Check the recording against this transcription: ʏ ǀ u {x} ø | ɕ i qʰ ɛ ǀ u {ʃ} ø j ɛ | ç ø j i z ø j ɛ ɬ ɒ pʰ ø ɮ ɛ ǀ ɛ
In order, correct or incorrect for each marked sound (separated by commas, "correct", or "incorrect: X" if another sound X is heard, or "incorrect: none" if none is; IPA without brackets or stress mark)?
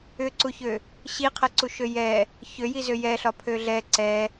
incorrect: ç, correct